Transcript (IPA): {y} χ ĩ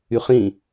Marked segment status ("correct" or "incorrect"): correct